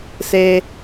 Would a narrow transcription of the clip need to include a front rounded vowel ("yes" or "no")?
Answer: no